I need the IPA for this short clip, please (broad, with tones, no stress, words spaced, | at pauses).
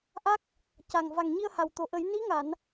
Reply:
ʔa˦˥k̚ | ca˨˩ŋ va˨˩ŋɲi˧ə̯ ha˨˩wt̪o˨˩˨ʔə˨˩˦j ni˧˥ ŋa˨˩˨n